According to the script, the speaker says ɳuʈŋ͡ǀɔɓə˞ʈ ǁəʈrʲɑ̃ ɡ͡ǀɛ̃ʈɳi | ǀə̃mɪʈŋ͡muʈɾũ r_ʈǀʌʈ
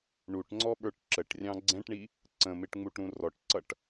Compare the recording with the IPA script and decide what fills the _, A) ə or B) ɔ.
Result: B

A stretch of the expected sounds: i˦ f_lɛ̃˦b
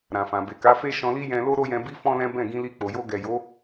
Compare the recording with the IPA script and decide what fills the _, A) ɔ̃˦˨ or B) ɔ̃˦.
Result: B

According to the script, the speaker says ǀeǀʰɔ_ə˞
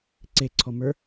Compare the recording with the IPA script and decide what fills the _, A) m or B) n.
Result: A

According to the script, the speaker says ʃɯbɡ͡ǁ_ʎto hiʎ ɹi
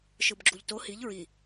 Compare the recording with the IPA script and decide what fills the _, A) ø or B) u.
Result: B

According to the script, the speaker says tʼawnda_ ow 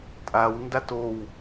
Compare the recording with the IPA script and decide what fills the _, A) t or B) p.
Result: A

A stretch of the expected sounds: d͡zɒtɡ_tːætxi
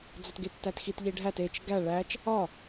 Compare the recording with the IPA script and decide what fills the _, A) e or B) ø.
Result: A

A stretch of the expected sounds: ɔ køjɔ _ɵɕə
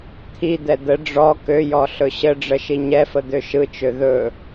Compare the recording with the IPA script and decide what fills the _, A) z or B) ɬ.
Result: B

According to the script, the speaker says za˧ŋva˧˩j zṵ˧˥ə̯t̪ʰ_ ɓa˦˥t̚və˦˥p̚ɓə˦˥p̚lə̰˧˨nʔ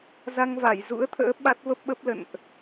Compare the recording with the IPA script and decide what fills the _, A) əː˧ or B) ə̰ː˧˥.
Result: B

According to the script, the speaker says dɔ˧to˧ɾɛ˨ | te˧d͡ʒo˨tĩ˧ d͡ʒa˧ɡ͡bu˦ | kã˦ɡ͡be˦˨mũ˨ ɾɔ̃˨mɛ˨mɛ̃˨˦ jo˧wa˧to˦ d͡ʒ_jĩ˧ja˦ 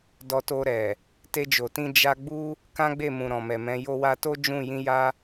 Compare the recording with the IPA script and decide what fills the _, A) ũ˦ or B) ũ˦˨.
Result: B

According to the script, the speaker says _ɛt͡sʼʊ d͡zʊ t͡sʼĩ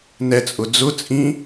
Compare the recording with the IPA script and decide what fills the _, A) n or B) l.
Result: A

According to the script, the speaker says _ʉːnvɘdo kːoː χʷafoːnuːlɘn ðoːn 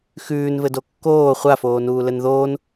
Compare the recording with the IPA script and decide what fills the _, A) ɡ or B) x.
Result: B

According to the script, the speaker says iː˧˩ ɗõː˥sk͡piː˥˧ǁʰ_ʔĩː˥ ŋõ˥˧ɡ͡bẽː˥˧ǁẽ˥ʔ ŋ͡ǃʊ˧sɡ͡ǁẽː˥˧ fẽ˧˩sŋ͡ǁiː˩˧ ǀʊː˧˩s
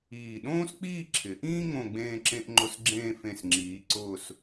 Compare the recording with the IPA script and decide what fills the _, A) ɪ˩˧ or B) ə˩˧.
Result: A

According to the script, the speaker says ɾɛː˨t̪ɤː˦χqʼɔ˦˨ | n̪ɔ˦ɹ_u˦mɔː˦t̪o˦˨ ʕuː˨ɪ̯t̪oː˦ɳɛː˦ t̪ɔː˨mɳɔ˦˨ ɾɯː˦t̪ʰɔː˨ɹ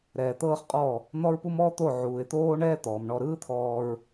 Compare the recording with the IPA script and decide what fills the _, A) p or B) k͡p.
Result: A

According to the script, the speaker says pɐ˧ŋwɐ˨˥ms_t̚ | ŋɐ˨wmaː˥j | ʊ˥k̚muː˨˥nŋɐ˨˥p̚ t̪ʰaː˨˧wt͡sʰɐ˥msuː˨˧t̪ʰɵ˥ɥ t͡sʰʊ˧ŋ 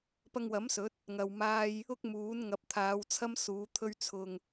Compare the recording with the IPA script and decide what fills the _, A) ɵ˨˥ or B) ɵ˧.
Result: A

